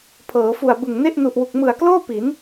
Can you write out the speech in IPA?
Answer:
pʰ ɤː˩˦ f u˨˩ a̯ b ɯ˨˩ ŋ n e˥˩ ʔ n u˨˩ ʔ w u˨˩ k̚ m ɯ˨˩ a̯ k l oː˥˩ p i˩˦ n

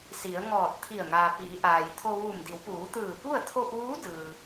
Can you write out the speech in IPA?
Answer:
s i˩˧ ə̯ ŋ ɔː˧˩ t̚ t̪ʰ i˧˩ ə̯ ŋ aː˩ p iː˩˧ ʔ aː˩ j t̪ʰ o˧ ʋ u˧˩ m d i˩˧ w p uː˩˧ t̪ ɯː˧˩ p u˥˨ ə̯ t̪ʰ o˧ p̚ ʋ uː˧˥ d ɯː˩

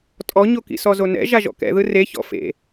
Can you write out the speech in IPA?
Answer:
tʼ ɔ ɲ o k ḭ s ɔ z o n ɛ̰ ʒ a ʒ ɔ̰ k ɛ̰ ð ɯ r e ç ɔ̰ f ḛ

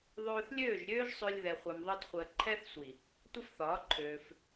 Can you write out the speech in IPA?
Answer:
ðˤ øː˧ θ lʲ øː˦˨ ʒ ɾʲ øː˦ ʒ sˤ ø˧ lʲ ð ɛ˧ χʷ ɛ˧ m ðˤ əː˦ t χʷ əː˧ ǃʰ ɛ˦ θ sʷ i˨ | tʷ ə˦ f θ ɒː˨˦ ǃʰ øː˧ f

